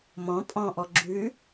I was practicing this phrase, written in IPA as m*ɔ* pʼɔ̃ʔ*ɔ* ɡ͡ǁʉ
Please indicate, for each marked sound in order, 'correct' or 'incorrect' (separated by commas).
incorrect, correct